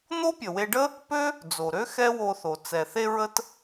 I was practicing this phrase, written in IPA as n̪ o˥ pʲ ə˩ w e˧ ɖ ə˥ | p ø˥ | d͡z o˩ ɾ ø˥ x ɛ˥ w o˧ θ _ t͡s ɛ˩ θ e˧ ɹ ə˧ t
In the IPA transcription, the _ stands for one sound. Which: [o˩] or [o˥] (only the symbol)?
o˩